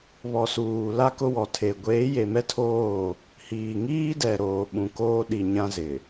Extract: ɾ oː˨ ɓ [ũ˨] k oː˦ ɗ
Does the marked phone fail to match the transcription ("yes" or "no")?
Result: no